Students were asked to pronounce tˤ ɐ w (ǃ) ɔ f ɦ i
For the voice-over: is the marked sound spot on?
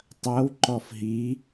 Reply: yes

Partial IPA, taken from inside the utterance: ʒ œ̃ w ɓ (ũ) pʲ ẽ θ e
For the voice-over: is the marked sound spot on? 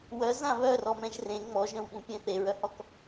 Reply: yes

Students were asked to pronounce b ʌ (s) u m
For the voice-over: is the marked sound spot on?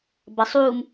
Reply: no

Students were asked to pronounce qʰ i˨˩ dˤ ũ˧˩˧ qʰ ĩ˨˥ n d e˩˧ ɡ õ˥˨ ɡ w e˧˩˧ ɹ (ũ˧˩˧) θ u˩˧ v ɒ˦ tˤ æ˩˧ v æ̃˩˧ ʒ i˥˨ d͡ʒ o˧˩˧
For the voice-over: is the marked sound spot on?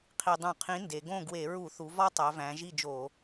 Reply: no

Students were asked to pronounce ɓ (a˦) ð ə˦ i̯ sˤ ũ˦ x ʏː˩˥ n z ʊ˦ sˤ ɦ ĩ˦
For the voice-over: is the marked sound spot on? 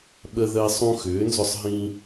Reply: no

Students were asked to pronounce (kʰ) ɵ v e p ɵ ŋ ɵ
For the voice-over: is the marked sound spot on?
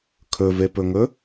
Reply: yes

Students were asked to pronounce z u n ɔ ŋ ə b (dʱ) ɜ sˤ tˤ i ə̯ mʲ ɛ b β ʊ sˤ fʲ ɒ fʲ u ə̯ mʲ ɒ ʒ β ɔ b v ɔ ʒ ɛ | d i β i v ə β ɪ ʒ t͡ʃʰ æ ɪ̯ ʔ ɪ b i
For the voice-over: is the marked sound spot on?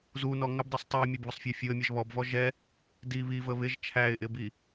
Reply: no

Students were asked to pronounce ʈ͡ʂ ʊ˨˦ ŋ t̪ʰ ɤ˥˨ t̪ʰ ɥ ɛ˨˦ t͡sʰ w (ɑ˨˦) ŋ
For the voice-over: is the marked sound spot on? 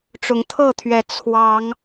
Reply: yes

